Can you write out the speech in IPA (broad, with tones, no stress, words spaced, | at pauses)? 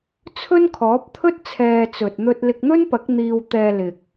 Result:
t͡sʰɵ˥nkʰɔː˨˥p̚t̪ʰɵ˥t̚ t͡sʰɛː˧t͡sɵ˨t̚ n̪ɵ˧t̚lɪ˧k̚n̪ɵ˥npɐ˨˥k̚ n̪iː˧wt̪ɛː˧lɪ˨k̚